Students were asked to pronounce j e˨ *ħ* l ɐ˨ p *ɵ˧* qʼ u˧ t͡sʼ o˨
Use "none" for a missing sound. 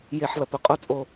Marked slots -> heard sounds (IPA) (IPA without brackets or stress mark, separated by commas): ħ, ɵ˧